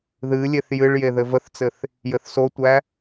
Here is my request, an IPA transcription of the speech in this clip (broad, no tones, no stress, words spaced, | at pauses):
ðɨ lʲeθjɨɭ jeðɘvəθt͡sɘθ | jɘθsotʷæ